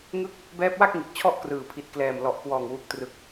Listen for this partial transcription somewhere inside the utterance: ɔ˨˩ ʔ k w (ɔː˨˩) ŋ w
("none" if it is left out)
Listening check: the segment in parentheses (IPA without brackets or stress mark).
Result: ɔː˨˩